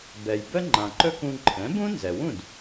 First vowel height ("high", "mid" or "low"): mid